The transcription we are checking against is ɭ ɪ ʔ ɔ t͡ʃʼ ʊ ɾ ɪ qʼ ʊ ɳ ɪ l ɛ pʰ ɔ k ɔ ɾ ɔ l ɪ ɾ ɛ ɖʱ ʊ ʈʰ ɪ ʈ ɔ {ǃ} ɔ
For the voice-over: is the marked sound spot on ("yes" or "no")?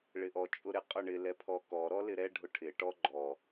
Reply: no